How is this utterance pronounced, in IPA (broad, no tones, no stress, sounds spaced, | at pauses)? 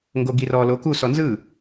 ŋ ɡ o ɡ i r ɔ l o k u s ɔ n z ɯ